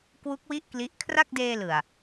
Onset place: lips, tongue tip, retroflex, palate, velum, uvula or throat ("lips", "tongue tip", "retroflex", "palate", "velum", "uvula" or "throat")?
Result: velum